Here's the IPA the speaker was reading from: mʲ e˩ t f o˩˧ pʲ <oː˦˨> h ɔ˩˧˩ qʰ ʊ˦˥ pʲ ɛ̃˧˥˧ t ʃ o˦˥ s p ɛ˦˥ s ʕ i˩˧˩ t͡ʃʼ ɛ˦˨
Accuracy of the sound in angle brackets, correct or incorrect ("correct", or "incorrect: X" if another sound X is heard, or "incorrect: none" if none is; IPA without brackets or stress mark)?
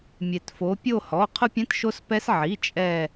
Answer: incorrect: o˦˨